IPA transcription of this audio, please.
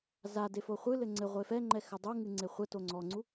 zade foχʷɨlɘ ŋ͡ǀɘ ʁʷefɛŋ͡ǃɛ xɘdˤuŋɨ ŋ͡ǀeχʷɛto ŋ͡ǀɔŋ͡ǀu

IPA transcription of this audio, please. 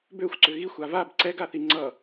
bøxʷǀʏ ɣixʷa vab ǀɛɡaθi ŋ͡ǀʌ

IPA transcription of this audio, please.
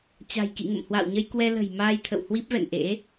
t͡ɕa̤˨˩jkḭ˧˨ ŋə̰˧˨mhwa̰ː˧˨wɲə˧jkwɛ˧ lə̤˨˩jmaː˧j t̪ʰə̰˧˨whwi˦˥p̚vɛ̰˧˨n ʔḛ˧˥

